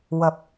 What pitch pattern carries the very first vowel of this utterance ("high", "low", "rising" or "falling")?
low